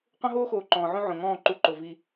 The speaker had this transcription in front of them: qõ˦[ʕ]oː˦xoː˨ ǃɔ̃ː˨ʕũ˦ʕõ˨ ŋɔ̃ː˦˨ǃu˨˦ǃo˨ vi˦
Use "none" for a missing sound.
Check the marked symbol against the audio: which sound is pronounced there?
ɦ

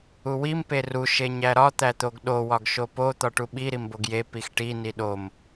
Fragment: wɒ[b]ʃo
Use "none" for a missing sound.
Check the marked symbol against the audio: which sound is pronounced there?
ɡ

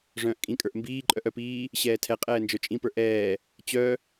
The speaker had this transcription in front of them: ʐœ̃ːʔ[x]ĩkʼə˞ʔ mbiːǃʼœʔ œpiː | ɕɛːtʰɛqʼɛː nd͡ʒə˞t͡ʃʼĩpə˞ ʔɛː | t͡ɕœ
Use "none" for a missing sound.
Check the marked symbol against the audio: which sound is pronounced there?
kʼ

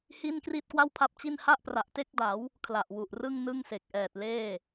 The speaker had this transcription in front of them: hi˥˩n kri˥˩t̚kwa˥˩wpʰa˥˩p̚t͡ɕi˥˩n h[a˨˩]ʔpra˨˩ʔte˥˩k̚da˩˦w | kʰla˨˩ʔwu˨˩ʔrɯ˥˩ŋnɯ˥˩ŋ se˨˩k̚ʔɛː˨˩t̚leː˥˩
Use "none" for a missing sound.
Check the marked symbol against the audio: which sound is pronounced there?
a˥˩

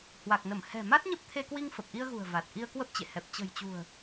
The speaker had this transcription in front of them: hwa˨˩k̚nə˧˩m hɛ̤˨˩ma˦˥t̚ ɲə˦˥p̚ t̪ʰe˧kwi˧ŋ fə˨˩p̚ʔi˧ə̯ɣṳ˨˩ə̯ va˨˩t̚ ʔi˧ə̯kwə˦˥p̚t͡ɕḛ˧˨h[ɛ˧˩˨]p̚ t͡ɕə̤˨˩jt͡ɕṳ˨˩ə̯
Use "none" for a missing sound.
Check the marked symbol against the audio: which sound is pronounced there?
ɛ˨˩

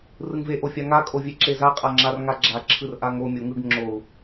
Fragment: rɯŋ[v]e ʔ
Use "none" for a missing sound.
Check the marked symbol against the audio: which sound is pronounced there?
v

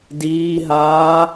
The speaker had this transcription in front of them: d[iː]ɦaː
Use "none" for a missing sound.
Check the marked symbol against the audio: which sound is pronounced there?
iː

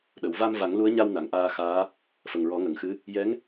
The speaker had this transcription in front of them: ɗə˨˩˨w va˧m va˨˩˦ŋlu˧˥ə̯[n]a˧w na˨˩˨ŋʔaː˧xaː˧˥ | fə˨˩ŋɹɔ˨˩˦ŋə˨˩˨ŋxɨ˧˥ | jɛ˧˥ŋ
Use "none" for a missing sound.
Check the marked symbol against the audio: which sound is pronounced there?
ɲ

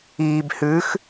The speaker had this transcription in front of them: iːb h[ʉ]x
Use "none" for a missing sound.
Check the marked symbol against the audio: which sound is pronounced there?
ʉ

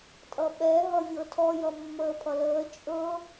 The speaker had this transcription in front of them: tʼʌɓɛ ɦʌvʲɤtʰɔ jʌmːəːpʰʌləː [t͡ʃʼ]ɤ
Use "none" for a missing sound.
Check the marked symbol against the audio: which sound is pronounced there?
t͡ʃʼ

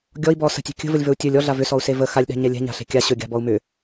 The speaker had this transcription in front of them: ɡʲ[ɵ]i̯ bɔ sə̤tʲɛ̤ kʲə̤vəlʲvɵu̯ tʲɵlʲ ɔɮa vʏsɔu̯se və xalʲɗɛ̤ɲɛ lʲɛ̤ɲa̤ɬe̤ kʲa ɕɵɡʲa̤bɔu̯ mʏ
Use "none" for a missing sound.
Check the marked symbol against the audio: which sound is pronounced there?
ɔ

